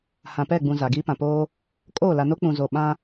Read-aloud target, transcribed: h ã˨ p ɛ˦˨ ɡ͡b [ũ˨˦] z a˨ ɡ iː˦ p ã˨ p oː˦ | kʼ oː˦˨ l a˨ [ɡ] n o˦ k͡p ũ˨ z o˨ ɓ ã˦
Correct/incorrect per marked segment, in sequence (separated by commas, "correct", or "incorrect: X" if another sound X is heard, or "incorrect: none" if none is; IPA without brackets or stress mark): incorrect: ũ˨, incorrect: none